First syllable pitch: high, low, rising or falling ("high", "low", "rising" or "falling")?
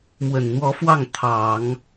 low